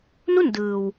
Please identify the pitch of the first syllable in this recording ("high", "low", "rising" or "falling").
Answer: falling